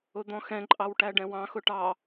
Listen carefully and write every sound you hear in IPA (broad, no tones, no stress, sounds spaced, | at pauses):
ʊ d̪ ɔ̃ x ɛ̃ ǃʼ ɑ w ʈ æ ɖ ɛ̃ w ɑ̃ x ʊ ʈ ɑ